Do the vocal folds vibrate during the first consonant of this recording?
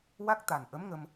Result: yes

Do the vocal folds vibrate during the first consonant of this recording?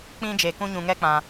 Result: no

